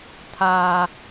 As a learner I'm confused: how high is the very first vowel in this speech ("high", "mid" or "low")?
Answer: low